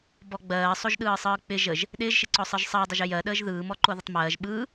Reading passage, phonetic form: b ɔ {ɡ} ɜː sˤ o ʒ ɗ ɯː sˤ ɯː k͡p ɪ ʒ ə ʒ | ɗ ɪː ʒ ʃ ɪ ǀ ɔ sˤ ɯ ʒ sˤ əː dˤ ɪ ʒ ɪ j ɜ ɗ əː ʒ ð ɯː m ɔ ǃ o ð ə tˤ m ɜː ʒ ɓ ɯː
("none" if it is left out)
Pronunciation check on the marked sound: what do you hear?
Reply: ɡ͡b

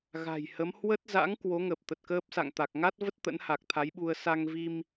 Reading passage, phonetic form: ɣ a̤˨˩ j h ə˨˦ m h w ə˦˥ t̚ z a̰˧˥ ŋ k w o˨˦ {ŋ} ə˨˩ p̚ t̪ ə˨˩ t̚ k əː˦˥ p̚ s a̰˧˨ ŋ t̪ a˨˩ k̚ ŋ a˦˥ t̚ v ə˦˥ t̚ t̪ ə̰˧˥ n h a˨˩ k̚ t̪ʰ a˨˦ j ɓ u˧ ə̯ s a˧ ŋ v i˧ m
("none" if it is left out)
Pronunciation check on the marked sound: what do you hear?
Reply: ŋ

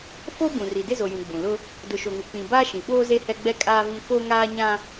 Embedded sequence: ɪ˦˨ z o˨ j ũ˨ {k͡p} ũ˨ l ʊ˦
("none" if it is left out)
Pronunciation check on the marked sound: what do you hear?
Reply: ɡ͡b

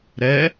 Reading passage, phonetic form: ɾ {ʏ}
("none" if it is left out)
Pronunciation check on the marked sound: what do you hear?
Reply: ɛ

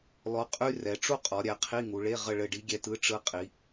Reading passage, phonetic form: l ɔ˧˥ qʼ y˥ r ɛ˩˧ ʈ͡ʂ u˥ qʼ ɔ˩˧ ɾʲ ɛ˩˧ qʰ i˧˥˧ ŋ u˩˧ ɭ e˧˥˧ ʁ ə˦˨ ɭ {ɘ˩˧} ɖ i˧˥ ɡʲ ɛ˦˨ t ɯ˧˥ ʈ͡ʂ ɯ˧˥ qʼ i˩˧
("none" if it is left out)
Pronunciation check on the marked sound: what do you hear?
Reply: ɘ˦˨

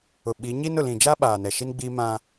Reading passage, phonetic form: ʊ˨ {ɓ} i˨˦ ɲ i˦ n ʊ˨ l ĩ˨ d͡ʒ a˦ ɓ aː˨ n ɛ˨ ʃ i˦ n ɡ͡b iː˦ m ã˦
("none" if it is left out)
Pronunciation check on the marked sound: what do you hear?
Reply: ɓ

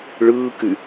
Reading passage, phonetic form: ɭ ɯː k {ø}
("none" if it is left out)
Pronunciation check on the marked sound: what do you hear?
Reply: y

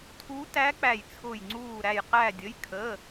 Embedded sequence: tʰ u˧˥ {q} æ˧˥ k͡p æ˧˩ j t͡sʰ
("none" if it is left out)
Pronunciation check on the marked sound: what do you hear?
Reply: t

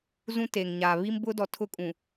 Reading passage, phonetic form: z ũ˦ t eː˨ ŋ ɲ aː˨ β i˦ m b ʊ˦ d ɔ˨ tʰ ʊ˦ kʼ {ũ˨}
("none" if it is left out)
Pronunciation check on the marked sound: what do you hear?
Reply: ũ˨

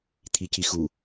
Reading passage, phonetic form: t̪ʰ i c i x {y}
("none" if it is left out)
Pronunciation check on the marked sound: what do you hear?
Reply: u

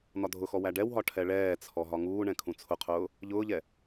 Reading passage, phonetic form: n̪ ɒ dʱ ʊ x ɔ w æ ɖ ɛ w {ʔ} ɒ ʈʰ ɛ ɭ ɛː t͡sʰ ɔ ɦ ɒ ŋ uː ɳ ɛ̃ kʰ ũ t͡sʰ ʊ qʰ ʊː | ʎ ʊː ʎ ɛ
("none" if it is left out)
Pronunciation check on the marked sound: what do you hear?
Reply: ɦ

